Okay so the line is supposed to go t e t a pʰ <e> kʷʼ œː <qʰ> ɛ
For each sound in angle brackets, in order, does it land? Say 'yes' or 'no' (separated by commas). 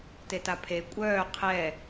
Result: yes, yes